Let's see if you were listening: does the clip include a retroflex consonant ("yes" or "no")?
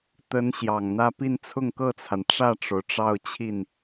yes